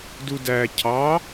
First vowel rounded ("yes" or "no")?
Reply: yes